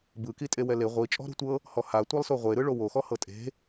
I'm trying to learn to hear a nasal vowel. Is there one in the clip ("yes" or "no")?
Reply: no